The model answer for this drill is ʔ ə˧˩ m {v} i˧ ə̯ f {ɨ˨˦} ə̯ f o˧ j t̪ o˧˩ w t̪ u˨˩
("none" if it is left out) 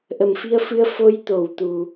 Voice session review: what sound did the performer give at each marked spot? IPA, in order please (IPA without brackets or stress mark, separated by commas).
f, ɨ˨˦